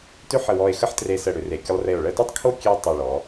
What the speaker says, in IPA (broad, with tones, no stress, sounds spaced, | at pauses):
t ʏ˥˧ ħ ə˧˩ w ɔ˧˩ e̯ x ə˥˧ ħ t r e˧ s ə˧˩ ɽ ʏ˩˧ r e˩˧ kʲ ə˧ lˠ r e˧˩ o̯ ɭ ə˥˧ t ʏ˥ tˤ kʰ o˥˧ kʲ e˥ o̯ tˤ o˧˩ ɭ ɔ˩˧